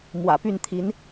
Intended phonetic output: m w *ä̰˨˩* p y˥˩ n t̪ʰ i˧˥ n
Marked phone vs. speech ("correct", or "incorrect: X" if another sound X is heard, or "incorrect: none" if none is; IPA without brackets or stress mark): correct